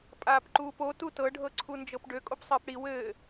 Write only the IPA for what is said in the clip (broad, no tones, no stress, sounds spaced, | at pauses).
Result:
pʼ aː p ǃ uː p o t u t ɤ ɖʱ ɤ ǀʰ u n d͡ʒ ɤ p ɖ ø kʼ o p sˤ ɘː p ɽ i w ɘː